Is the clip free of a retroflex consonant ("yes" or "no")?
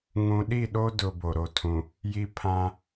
yes